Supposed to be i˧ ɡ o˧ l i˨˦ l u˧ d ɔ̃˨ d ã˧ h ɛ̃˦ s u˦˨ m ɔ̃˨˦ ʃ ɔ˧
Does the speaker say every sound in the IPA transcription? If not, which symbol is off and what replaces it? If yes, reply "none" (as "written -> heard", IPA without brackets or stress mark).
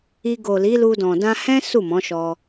o˧ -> o˨